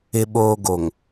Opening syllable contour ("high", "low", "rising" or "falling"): low